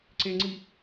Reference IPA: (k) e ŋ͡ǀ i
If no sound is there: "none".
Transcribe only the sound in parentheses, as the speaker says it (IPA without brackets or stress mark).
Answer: ǀ